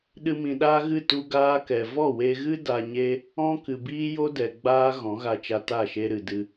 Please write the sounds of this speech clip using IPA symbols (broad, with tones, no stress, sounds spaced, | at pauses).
ɗ ɨ˧ m ĩ˨ ɗ aː˦ ɣ ɨ˦˨ t u˧ ɡ aː˦ k ɛ˨ v ɔ˦˨ w e˧ ɣ ɨ˦ d a˧ ɲ e˦ | ɔ̃˦ k ɨ˨ b iː˦ j o˦ d ɛ˨ ɡ͡b aː˦ ɣ ɔ̃˨˦ ɣ a˧ t͡ʃ a˧ t a˦˨ ʃ e˧ ɾ ɨ˨ d ɨ˧